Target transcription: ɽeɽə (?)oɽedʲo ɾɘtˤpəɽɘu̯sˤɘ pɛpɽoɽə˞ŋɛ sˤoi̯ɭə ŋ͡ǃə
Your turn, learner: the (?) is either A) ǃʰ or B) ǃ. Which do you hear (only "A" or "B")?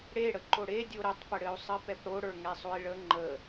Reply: B